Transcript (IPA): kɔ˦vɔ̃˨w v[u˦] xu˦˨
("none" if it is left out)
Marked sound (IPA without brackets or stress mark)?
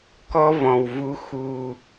u˦